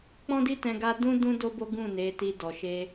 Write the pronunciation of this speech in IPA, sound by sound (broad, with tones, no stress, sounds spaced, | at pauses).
k͡p ɔ̃˦ d i˦ t ɛ̃˧ ɡ a˦ d ũ˦ d ũ˦ d o˦ b o˦ ɡ ũ˦˨ n e˨˦ t i˧ d ɔ˨ ʃ e˧